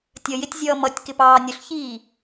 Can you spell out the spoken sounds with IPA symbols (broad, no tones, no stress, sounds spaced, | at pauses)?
tʲ ə j ɪ tʲ zʲ ʌː m ʌ tʲ k ɪ p ɑː nʲ ʊ ɬ ç iː